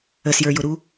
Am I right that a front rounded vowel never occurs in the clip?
yes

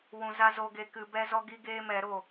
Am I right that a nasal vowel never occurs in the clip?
no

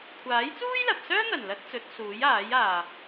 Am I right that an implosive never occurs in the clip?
yes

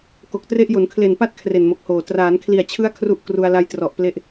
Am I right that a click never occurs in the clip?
yes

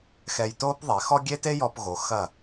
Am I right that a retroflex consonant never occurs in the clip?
yes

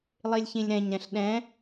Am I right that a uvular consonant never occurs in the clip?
yes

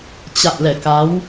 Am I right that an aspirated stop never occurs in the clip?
yes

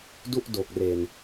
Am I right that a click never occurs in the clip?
yes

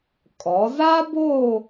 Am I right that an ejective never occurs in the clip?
no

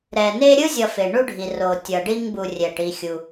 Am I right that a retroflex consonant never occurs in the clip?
no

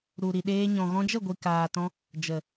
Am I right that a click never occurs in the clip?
yes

